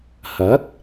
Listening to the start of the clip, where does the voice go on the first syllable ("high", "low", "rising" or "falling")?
rising